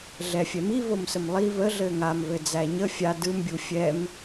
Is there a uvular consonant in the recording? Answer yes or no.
no